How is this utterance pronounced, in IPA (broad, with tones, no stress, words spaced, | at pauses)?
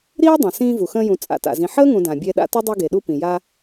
ɾiː˥dˤã˩ sĩː˦vu˩xə̃ː˦jũ˨ t͡sʼa̰˨ta̰˩zĩ˨ ħəː˥ŋũ˨dã˩ bʲɛ˦ɗa̰˥ tʊ˥dˤi˦ɡe˩ɗu˦ pĩ˩ja˦